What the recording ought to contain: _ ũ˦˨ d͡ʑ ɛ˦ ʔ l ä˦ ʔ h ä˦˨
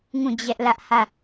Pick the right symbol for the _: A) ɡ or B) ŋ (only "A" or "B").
B